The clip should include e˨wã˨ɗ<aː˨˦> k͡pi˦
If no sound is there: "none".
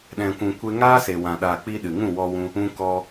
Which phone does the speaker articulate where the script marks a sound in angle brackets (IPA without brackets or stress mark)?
aː˨